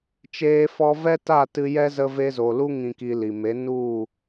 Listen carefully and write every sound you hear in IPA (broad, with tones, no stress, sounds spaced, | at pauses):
t͡ʃ eː˧ f ɔ˧ v ɛ˦ t a˦˨ t ɨ˧ j ɛ˦ z ə˧ v e˧ z o˨ l u˦ ŋ ĩ˧ k i˧ l i˨ m e˨˦ n u˦˨